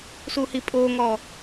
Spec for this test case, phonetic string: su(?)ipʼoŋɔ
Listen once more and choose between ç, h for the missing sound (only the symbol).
h